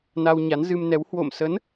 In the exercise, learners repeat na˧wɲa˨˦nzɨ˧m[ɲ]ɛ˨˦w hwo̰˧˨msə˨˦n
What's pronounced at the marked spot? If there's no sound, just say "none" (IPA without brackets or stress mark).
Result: n